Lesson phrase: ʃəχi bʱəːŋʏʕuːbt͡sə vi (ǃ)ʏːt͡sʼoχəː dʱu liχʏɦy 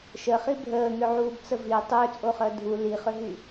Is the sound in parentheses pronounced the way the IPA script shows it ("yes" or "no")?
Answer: no